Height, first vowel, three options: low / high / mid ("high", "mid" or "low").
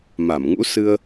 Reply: low